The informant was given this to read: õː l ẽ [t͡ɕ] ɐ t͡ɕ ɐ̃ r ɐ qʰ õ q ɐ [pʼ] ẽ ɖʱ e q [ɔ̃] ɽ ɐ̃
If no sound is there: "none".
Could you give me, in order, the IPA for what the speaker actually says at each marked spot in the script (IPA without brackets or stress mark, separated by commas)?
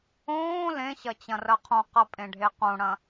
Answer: ɕ, pʼ, õ